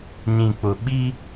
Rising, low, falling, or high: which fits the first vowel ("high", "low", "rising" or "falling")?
low